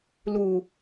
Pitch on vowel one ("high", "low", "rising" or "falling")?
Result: low